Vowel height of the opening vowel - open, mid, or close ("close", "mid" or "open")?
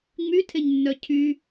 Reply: close